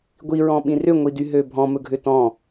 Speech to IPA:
ɡʷiɹɔ̃ɓĩ rʏŋʷidyɦø bʱɔ̃mɵɡʱʏ tɔ̃

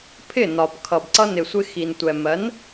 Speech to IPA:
pʰɪ˥˩nɒ˩b kʰʌ˩bǀʌ˧ nɪ˩sʷɪ˧ xi˩ntʷɛ˩ mɜ˩˥n

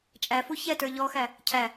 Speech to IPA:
t͡ʃʼæfu çɛtə˞ ʎɔxæ | cʰæ

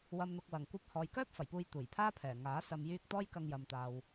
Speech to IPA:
wɐ˨mn̪ʊ˨k̚wɐ˨˩ŋ kʷɐ˧p̚ hɔː˨jkœː˥p̚ fɐ˨˩jpuː˧j t̪uː˨˩jpʰaː˥pʰɛː˨˩ ŋaː˨˥ sɐ˨mjyː˧k̚ t̪ɔː˥jkɐ˧ŋjɐ˨mt̪aː˨w

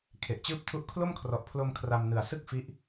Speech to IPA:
kʰe˨˩ʔt͡ɕɯː˥˩p̚ tʰu˦˥ʔkʰlo˥˩mkʰrɔ˨˩ʔpʰlo˧m kʰra˧mnɯ˨˩a̯ sɯ˥˩k̚fi˦˥ʔ

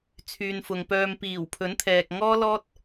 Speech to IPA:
t͡sʰyː˨nfʊ˨ŋpœː˧m piː˨˩wpʰɵ˨˥nt̪ʰɛː˨k̚ ŋɔː˥lɔː˥t̚

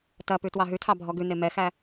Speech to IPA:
tɐpʉ twɑɦʉtʰɑ bʱɔɡʉne mɛxæ

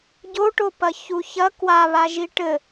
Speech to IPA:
ɟoʈo pɐçuçɐ kwaβaʒi ʈɘ

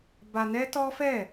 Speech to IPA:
ba˧nɛ˦ tɔ˦fɛ˦˨

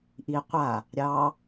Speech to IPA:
ʔi qʷa | ɾʲɑ

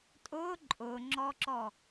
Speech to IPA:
tʼʊ ǃʼʊŋ͡ǁɔǁɔ

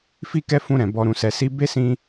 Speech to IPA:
fi˦kɛ˦fũ˧ɾɛ̃˨ bɔ˧ ɾũ˨sɛ˨si˧be˦ sĩ˦

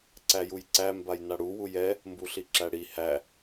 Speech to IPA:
ǀæjujǀæ mbajnaɽu wujɛ | mbuɬiǁæɽi hæ

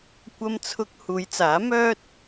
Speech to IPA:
kʷɐ˥mt͡sʰʊ˥k̚ huː˨˧jt͡saː˨˥mœː˥t̚

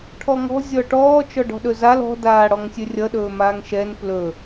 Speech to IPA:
ʈʰɔŋɔ̤ zʲɔʈɔː t͡ʃɔɖɔ̤ɗɵzal ɔ̤ daːɽɔŋsʲɵrʲʌ ɗɵːmaːŋʃɛn plɵ

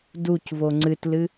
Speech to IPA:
ducvo ŋ͡ǀɨtlɨ

